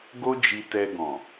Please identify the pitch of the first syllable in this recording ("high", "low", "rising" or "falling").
high